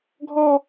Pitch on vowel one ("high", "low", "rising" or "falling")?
high